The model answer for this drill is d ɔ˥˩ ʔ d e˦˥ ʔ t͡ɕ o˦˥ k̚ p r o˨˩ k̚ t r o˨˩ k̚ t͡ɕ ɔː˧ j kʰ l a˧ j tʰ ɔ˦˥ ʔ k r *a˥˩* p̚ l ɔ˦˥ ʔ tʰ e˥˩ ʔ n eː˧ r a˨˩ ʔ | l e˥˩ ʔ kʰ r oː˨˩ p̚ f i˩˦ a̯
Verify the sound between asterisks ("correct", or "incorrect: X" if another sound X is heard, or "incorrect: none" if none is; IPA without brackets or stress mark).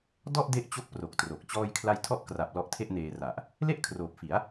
incorrect: a˨˩